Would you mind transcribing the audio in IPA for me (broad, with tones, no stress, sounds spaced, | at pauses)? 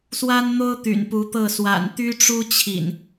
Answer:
s w a˦ n n̪ o˦ ʊ̯ t̪ y̰˨˩ n p u˨˦ t̪ ɤ˥˨ s w a̰˨˩ n t̪ y˦ ʈ͡ʂ u˦ t͡ɕʰ ḭ˨˩ n